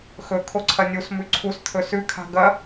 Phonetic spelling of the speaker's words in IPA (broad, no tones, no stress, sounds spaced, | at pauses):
x ɵ kʰ o ǀʰ ɐ nʲ u s m ʉ ǀʰ u s t̪ʰ ɵ s ʉ kʰ a̤ ɡ ɐ